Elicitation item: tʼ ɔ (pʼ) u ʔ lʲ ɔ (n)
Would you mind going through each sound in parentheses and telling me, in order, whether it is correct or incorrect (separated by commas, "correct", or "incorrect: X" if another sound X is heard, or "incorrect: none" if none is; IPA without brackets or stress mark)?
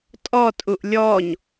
incorrect: tʼ, incorrect: ɲ